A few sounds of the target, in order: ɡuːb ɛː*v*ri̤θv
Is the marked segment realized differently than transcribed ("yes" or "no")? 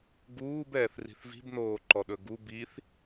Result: yes